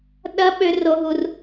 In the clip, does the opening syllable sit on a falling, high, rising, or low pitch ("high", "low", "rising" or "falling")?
high